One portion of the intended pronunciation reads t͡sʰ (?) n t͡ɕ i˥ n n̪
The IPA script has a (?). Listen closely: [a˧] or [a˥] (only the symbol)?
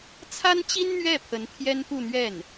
a˥